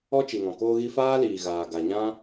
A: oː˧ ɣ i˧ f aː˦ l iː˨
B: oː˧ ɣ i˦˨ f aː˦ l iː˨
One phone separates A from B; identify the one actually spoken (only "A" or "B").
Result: A